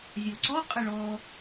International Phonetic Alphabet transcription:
zʲ o ǀ ɔ qʼ ə ɭ ɔ

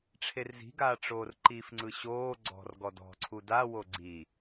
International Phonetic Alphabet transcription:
ʈ͡ʂʰ e r z i̤ ɡ aː ʈ͡ʂ oː r ǃ i f ŋ͡ǀ ɯ ɕ oː ɡ͡ǀ ɔ̤ r ɡ ɔ d ɔ̤ ǀʰ u d a w o ɡ͡ǀ i

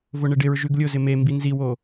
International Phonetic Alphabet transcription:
v ʊ ɳ ɪ ɖ ɪ ɹ ʒ ʉ ɡ lʲ ʊ z ɪ m e m b i n z i w o

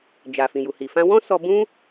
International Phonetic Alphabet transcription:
d͡ʒ a˨ f ĩ˨ j u˨ h i˨ f ã˧ w ɔ̃˦ s ɔ˧ b ũ˦

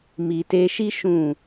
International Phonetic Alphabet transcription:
m i˨ t e˧ ʃ i˦ ʃ ũ˦˨

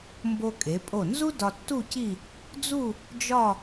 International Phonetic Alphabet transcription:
m b o˧ kʼ e˩˧ pʼ o˧˩ n z u˥ d ɒ˧ tː u˥˧ c i˥˧ | d͡z u˥˧ | d͡ʒ ɒ˥˧

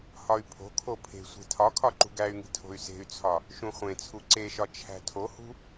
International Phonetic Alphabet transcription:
h ɒ y̯ pʰ o̤ kʰ o pʰ e̤ sʷ e̤ tʰ ɒ kʰ ɒ ǃ ṳ ɡ æ y̯ ŋ i̤ tʰ o̤ y̯ s e̤ y̯ t͡sʰ ɒ | ʃ ũ χʷ ẽ t͡sʰ u ǀ e ʃ ɒ t͡ʃʰ æ̤ tʰ o h ṳ

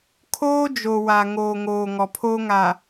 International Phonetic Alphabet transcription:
kʰ oː˦ d͡ʒ o˨ w a˨ ŋ oː˨ ŋ oː˨ ŋ ɔ˨ pʰ oː˦ ŋ a˨

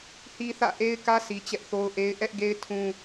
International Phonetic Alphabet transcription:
h i˦ θ ä̰˦˨ ʔ e˦ ɪ̯ k ä˦ sʰ i˨ t͡ɕ ɛ˦ ʔ θ o˦ ʊ̯ ʔ e˦ ɪ̯ ʔ ɛ˦ ʔ ɡ e˦ ɪ̯ tʰ ũ˦

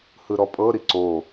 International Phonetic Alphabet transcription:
h ɯ ɾ ɔ pʼ ɤ ɾ i ǀ o

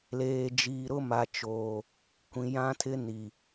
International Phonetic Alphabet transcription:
l eː˨ d͡ʒ iː˨ ɾ ʊ˦ m a˨ t͡ʃ oː˨ | kʷ ĩ˨ j ã˦ tʰ ɪ˦ n i˨

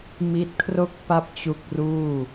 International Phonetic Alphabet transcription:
m i˦˥ t̚ kʰ r o˥˩ k̚ p a˥˩ p̚ t͡ɕ u˦˥ k̚ r uː˥˩

